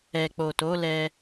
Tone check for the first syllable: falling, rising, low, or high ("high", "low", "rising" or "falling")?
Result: low